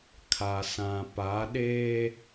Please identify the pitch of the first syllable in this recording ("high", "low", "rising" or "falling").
low